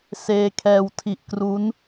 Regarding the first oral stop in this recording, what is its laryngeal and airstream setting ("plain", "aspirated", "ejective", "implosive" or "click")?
aspirated